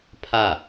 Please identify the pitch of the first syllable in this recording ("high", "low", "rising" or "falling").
falling